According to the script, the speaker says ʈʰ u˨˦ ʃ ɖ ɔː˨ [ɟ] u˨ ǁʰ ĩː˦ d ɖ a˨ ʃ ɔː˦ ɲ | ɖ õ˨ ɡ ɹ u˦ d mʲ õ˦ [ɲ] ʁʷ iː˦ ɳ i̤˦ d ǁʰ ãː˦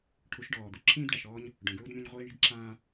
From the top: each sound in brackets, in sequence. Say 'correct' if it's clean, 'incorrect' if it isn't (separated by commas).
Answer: incorrect, correct